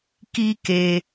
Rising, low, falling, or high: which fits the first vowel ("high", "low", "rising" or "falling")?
high